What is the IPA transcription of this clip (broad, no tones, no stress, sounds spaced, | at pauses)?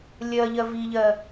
lʲ ɜ ʎ ɜ v i ʎ ɜ